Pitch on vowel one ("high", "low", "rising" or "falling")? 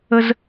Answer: high